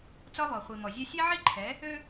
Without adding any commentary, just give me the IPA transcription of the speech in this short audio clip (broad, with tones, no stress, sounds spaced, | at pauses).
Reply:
t͡s ɒ˦ β ɔ˨ χʷ i˨ m ɔ˨ zʲ ɛ˦ sʲ e˦ ʕ i˦ ǃʰ ɛ˨˦ | ø˦